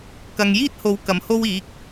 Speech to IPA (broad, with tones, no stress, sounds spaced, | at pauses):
k ɐ˨ ŋ j iː˥ t̚ h o˨˧ w k ɐ˨˩ m h o˧ w iː˨˥ k̚